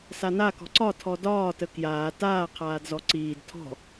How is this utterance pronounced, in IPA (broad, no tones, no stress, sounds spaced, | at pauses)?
s a n a k ɔ̤ ǀ ɒ tʰ ɔ d ɒː t ə k j aː t aː qʰ aː d z ɔ ǀ iː d tʰ ɔ̤